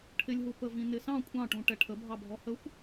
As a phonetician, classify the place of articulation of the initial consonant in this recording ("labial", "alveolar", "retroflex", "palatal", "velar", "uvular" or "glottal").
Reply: retroflex